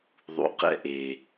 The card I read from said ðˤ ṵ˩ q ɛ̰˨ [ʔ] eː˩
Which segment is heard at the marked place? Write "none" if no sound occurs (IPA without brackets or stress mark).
ʔ